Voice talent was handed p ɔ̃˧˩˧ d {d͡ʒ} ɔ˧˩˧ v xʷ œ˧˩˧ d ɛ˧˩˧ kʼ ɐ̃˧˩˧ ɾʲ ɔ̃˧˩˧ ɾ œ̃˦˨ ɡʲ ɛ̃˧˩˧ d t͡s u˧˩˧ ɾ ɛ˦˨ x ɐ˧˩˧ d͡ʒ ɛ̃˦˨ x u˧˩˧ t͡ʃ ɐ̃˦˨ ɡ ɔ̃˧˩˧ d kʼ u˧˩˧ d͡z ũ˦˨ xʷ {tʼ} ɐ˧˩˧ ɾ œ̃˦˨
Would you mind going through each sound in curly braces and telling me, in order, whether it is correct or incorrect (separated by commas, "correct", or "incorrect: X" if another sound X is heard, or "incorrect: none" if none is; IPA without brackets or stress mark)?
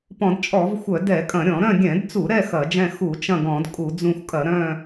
incorrect: t͡ʃʼ, incorrect: kʼ